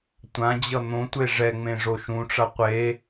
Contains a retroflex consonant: yes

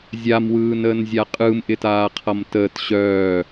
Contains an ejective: yes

